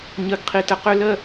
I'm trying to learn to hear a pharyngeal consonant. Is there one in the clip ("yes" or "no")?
no